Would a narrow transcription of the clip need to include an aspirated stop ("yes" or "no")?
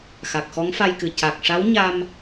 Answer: no